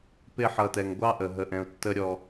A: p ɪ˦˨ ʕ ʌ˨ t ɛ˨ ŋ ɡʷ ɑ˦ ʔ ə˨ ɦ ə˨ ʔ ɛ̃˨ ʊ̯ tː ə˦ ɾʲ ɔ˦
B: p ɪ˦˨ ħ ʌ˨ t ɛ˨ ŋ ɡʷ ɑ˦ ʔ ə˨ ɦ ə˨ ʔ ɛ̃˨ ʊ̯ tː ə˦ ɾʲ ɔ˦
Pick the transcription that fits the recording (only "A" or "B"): B